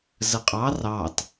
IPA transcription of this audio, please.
z ə qʼ ɑ r ɑ t

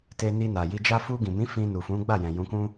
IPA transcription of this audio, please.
t e˧ n i˧ n a˨ j i˧ d͡ʒ a˦ f u˧ ɡ ĩ˨ m ĩ˨˦ f ĩ˧ n u˨ f ũ˨˦ ɡ͡b a˦˨ j ɛ̃˨ j ũ˨˦ k ũ˦

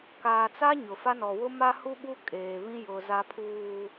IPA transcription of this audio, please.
k aː˨ t͡s a˦ ɲ ʊ˨ f a˦ n ɔ˨ w ʊ˦ m a˦ h u˦ ɓ u˦ kʼ eː˨ β ĩ˦ j ʊ˨ z a˦ pʰ uː˨

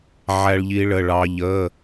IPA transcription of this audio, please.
ʕ æ˥ ɭ ʎ i˥ ɭ ə˧˥˧ ɭ ɑ˥ ʎ ə˧˥˧

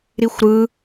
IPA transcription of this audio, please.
ɾ i xʷ ɾ ɯ

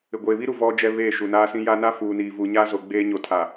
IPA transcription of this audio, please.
ɪ˨ ɡʷ eː˨ β i˦ ɾ u˨ v ɔ˦ d͡ʒ ɛ˦ β eː˦˨ ʃ u˨ n aː˦ s ĩ˦ j a˦ n a˦ f uː˨ n iː˨ v uː˨ ɲ a˦ z o˨ ɡ͡b eː˦ ɲ o˨ tʰ a˨

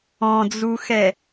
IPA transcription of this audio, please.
ɔ̃ d͡z u x ɛ

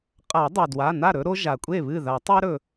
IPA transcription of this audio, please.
qʼ a˨˩˦ dˤ a˩ d w a˩˧˩ n a˥˩ ɾ ɵ˦ ɾ o˦ ʒ a˩ kʷʼ e˥˩ β ɨ˥˩ ð a˨˩˦ tˤ e˦ ɾ ɵ˩

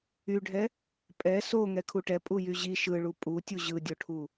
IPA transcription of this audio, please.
y ɖʱ ɛ | pʼ ɛ s o ŋ ɛ kʰ u ʈ ɛ pʼ u j y ʑ i ʃ ɯ ɭ u pʼ u tʲ u ʑ ɯ dʲ o ʈʰ u

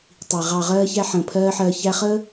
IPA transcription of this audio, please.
tˤ i˨ ʁ ɑ˨ ʁ ɜː˦ ç æ˦ ħ ə̃ː˧ pʰ ɜː˦ ħ ɜː˧ ç æ˦ χ əː˦

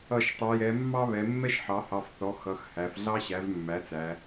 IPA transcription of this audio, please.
ʌ˧˩˧ ʃ tˤ ɛ˩˧ j ɛ˩˧ mː ɑ˥ β ɛ˩˧ mː ɛ˥ ʃ ħ ɑ˩˥ h ɑ˩˧˩ f θ ɔ˩˥ x ʌ˩˧˩ x h æ˩˧ f ɮ ɑ˥ ɕ æ˩˥ v mː æ˩˥ t͡s æ˩˧

